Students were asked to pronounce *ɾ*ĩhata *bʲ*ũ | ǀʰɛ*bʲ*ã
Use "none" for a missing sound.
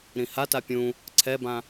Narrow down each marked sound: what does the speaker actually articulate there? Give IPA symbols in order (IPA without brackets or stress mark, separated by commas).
ɾ, pʲ, b